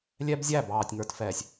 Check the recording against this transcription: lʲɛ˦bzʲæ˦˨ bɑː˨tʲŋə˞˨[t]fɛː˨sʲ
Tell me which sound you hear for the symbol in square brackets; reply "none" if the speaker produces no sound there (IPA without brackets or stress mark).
t